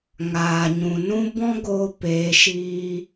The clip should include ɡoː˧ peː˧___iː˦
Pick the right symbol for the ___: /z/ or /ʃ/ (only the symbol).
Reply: ʃ